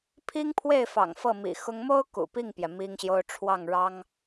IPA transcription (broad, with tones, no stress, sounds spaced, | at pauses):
pʰ i˥ ŋ pʰ w e˥˩ ɪ̯ f ɑ̰˨˩ ŋ f ɤ˥˩ m ḭ˨˩ x ʊ˥ ŋ m o˥ ʊ̯ k ṵ˨˩ p i˥˩ ŋ p j ɛ˩ m i˥ ŋ ɕ j o˥ ʊ̯ ʈ͡ʂʰ w ɑ˥˩ ŋ ɻ ɑ˥ ŋ